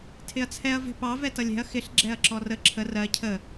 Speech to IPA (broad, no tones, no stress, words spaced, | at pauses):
tʰɪɐ̯t͡sʰɛɐ̯ vɛ̤pɑ vɛtʌlʲɛ̤ɐ̯ xɪɬ ɡ͡ǁɛɐ̯ǁɔrə ǁʰə rɜ cʰə